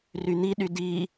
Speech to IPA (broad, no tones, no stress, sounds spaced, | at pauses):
r y n̪ i ɗ y d i